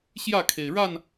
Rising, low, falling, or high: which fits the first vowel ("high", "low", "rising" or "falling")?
falling